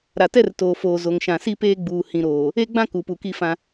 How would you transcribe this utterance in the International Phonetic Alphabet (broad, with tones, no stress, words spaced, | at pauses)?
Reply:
ɾa˨tɛ˦rtoː˨foː˨ zo˨ŋʃã˨ si˦ peː˦ɡ͡buː˨ hĩ˨ɾoː˨ | e˦ɡ͡bã˦ ku˨pu˨ki˦ fã˦